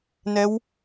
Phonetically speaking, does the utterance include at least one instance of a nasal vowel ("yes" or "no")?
no